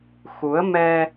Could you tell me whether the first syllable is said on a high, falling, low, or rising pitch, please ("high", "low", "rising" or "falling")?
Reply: rising